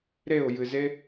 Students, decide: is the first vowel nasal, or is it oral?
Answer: oral